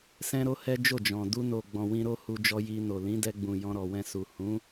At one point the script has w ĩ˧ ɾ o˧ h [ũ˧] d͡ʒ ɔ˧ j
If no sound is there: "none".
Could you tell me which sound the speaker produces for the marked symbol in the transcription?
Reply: u˧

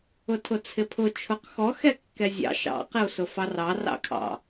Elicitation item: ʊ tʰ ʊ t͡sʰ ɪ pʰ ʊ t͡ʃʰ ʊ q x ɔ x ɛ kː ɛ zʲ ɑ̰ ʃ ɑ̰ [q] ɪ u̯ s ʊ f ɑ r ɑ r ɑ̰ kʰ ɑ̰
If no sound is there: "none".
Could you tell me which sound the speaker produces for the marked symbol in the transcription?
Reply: q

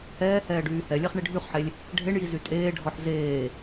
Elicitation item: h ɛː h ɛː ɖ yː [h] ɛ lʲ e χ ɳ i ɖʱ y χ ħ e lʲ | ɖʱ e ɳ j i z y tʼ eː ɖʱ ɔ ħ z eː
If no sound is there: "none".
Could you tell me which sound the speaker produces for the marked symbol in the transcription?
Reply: h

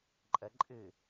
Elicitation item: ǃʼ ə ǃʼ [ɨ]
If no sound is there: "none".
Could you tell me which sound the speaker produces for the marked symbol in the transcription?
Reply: ɨ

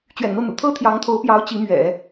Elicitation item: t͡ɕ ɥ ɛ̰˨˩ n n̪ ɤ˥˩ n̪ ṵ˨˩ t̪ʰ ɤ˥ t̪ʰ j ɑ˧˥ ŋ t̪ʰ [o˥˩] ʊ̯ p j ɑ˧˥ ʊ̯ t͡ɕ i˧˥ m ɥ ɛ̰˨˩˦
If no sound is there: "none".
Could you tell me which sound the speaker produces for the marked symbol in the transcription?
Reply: o˧˥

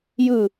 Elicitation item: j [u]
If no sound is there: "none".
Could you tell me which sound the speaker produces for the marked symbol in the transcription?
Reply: ɯ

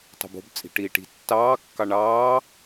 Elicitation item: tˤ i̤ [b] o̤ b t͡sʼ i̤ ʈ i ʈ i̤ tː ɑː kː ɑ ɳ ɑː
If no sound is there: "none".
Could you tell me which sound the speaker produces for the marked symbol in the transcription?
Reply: b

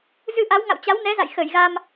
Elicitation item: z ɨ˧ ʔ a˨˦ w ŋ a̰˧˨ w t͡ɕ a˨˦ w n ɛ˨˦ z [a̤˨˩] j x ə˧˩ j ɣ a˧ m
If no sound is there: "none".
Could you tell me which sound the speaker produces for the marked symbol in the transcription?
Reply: a̰˧˨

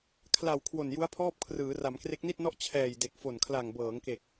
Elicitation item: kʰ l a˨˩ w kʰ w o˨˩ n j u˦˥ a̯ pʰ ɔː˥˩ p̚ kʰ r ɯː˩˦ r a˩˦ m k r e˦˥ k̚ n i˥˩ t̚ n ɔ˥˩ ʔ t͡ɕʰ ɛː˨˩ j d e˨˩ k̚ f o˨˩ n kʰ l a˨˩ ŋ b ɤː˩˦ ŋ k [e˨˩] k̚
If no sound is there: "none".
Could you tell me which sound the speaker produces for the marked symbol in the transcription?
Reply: e˨˩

